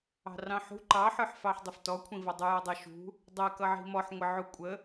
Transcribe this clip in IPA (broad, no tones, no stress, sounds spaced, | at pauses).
ɑ̤ r ɑ̃ ħ ṳ ǃ ɑ ħ ə˞ ħ f ɑ ħ dˤ ɪ f t ɔ kʷʰ ĩ v ʌ dˤ u j ɔ dˤ ɛ ʃ ṳ | dˤ ɛ k ʌ ʕ i̤ m ɔ ħ ŋʷ ɪ ʕ u kʷʼ ə